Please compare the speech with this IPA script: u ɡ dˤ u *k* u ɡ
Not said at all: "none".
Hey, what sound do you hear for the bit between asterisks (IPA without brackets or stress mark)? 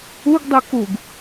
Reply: k